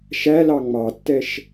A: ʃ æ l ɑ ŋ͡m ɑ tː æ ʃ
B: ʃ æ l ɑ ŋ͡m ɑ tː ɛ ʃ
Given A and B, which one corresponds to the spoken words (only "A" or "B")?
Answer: B